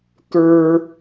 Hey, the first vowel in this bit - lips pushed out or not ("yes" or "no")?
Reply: no